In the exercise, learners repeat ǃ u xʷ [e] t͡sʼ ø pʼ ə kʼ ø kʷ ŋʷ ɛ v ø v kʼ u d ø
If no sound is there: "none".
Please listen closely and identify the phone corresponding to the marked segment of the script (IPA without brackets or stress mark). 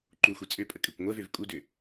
e